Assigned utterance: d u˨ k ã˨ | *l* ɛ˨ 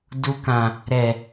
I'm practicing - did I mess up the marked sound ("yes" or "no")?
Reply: yes